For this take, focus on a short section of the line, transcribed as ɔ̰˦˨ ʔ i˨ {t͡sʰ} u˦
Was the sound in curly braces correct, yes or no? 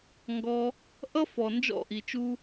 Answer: no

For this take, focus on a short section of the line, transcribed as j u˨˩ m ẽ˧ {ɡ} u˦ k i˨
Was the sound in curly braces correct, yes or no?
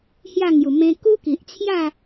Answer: no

